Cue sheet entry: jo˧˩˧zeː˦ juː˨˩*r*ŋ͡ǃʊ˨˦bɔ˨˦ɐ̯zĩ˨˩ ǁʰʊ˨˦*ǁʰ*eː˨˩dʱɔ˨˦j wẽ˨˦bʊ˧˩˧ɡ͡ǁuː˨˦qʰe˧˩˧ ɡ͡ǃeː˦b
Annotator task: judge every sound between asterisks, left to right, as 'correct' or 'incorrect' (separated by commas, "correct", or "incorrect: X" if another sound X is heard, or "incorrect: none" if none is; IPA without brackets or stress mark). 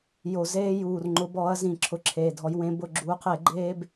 correct, correct